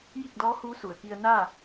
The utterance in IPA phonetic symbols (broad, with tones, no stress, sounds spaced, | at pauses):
j i˥˨ k̚ d ɔː˧˥ h uː˧˥ s u˩ ə̯ k i˧ ə̯ n a˥˨